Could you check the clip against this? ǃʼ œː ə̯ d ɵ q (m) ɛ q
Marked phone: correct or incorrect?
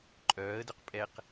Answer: incorrect